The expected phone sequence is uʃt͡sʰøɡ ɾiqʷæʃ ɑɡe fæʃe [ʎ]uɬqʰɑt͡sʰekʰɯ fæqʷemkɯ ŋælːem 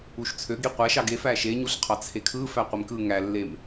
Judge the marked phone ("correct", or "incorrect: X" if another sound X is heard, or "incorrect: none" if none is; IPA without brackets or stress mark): incorrect: ɲ